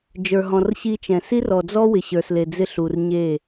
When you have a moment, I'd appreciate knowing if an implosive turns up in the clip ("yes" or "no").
no